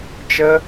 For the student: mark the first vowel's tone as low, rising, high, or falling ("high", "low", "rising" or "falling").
high